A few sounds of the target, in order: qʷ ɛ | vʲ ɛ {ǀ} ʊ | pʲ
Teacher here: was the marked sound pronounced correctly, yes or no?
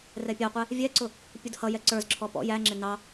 yes